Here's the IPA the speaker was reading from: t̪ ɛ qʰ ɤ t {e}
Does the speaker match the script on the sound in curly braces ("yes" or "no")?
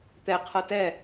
no